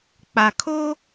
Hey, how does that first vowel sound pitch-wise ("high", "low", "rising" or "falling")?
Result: low